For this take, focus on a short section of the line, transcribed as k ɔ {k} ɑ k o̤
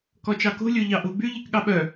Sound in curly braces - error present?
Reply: yes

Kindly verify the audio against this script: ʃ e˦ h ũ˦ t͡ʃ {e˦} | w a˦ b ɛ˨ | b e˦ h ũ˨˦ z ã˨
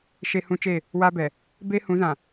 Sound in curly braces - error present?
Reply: yes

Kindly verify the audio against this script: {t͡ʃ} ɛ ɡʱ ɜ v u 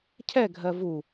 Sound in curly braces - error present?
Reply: yes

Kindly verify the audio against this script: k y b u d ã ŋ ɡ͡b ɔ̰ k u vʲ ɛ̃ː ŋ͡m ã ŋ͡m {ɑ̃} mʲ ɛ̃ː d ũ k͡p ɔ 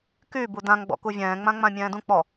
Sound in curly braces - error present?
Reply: yes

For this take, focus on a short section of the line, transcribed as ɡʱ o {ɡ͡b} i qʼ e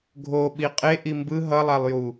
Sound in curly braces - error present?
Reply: yes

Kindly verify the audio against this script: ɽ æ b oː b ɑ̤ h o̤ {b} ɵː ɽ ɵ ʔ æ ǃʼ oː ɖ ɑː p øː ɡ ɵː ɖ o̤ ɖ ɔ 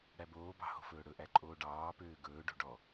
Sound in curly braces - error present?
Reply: yes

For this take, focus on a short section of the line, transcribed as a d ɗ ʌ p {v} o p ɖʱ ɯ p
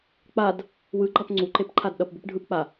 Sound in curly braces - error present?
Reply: yes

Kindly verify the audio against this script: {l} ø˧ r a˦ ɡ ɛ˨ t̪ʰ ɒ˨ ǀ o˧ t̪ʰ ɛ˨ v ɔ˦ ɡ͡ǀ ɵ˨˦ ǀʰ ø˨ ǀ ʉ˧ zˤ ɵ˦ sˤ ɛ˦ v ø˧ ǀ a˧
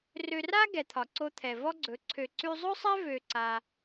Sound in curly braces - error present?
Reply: yes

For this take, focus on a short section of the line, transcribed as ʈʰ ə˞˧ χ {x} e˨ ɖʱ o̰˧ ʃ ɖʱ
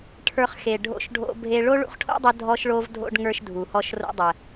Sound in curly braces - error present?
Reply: no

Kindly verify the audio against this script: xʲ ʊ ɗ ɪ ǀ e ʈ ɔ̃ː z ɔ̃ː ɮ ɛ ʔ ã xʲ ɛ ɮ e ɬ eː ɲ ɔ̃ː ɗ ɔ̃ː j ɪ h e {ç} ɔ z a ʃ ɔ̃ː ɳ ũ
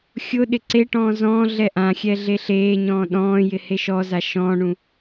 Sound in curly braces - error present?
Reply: yes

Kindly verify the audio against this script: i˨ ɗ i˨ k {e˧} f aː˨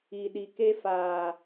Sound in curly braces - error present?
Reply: no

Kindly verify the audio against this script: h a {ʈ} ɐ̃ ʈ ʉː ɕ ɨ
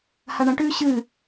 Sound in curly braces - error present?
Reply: yes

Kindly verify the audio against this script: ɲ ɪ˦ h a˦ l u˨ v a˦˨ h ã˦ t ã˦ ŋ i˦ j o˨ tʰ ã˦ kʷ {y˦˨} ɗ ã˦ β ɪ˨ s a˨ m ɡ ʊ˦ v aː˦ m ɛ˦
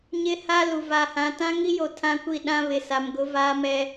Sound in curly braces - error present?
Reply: yes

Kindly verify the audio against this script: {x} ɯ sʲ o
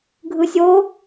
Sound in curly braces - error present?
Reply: yes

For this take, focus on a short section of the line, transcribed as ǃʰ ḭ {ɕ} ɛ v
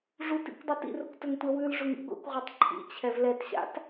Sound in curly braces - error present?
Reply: yes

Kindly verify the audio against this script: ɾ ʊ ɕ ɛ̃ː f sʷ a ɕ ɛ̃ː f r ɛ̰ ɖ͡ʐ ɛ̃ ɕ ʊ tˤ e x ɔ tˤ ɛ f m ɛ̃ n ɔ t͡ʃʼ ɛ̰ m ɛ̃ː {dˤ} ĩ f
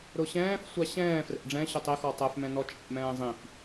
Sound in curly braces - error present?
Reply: yes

